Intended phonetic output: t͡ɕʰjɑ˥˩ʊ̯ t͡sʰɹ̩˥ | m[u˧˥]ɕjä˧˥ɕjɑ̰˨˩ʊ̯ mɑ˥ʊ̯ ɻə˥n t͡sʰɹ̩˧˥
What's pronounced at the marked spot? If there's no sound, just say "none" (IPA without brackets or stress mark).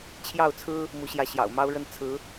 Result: u˧˥